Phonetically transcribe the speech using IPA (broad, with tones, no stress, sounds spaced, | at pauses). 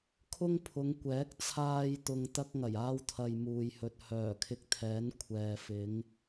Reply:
kʰ ʊ˥ ŋ pʰ ʊ˨˧ ŋ kʷ ɛː˨˥ k̚ t͡sʰ aː˧ j t̪ ʊ˧ ŋ t̪ ɐ˥ k̚ ŋ ɐ˨˩ j aː˥ w t̪ʰ ɐ˧ j m uː˨ j h ɵ˨ t̚ h œː˨˩ kʰ ɪ˧ k̚ t̪ʰ ɛː˨˥ n kʷʰ ɛː˨ f ɪ˨˧ ŋ